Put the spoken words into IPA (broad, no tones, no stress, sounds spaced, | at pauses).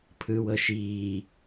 pʰ ɯ w ɤ ʃ iː